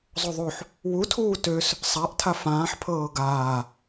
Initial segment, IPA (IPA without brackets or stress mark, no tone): zˤ